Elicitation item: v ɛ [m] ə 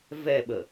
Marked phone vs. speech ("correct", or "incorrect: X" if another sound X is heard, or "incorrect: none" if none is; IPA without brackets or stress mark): incorrect: ɓ